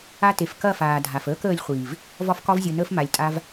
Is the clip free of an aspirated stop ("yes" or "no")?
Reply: yes